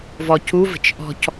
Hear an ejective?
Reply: no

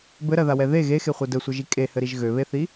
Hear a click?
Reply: no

